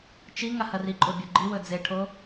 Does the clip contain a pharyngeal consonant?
no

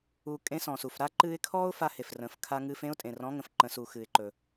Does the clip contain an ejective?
yes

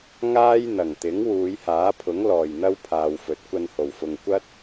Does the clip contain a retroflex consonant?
no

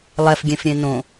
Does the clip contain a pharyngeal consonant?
no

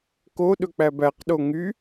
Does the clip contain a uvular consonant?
yes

